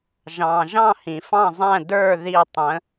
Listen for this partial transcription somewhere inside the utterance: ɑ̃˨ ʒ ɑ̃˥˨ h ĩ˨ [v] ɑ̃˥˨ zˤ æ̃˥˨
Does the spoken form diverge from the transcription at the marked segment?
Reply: yes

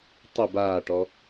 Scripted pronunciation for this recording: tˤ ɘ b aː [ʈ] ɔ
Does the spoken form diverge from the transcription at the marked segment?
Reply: no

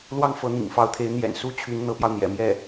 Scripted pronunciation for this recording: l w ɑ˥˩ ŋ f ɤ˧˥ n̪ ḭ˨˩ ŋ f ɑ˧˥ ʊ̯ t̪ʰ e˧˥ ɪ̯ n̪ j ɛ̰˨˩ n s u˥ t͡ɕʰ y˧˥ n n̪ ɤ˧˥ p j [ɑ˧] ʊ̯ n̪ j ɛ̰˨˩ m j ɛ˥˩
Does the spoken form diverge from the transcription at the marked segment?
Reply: no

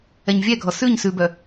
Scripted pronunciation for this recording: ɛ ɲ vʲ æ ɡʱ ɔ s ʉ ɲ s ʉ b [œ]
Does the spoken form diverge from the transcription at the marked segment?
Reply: no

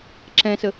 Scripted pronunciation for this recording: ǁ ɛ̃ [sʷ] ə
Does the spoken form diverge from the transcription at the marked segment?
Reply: yes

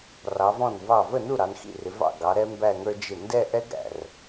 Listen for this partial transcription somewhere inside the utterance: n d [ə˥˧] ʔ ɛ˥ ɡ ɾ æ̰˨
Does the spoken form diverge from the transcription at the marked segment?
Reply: yes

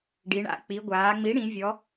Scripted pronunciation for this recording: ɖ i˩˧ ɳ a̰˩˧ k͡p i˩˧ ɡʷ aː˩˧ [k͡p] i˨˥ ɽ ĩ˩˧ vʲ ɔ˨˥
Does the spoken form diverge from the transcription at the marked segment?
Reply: yes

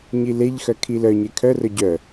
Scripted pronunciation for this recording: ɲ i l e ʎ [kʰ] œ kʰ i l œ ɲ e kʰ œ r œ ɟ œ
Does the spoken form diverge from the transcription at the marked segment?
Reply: yes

